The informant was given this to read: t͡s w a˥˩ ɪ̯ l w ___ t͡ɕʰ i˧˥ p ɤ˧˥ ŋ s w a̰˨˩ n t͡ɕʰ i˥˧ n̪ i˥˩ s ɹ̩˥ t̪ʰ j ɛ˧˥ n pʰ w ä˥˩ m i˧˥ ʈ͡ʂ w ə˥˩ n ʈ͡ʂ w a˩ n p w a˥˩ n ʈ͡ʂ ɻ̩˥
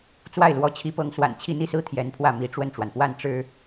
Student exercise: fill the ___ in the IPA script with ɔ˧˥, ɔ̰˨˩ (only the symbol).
ɔ˧˥